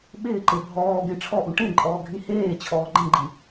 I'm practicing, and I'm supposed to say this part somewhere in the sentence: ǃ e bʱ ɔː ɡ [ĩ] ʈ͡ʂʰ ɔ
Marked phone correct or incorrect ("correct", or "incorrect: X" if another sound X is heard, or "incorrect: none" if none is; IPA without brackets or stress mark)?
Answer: incorrect: ẽ